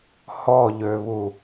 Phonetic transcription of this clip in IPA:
hɔʎøβu

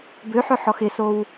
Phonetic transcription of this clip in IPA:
bøħœħɔx ɪsow

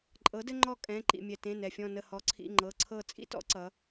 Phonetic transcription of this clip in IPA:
ǃʼɤ˩˥dɘ˦ŋ͡ǃɔ˦˨ kʼɛ̃˩˧˩ ǃḭ˩mʲɛ˩tẽ˩˧˩ nɛ˩fʲɔ̃˦˨nə˦˨ hɔ˩˥ǀʰḭ˩˧˩ŋ͡ǃɤ˩˧˩ǀʰɤ˦˨ t͡sʼḭ˦tɔ̰˩˥ ǀʌ˩˧

